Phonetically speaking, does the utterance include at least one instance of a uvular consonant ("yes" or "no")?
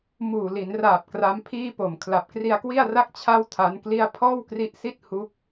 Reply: no